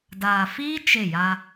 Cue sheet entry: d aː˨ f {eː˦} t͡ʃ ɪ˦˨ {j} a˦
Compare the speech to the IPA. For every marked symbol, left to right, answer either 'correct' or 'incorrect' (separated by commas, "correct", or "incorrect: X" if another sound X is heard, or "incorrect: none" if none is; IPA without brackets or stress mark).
incorrect: iː˦, correct